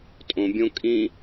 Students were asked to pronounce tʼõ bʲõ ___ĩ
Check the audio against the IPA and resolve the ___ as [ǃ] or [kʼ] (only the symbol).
kʼ